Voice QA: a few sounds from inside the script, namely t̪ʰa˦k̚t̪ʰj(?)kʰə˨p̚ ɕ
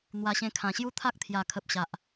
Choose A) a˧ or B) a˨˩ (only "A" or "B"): B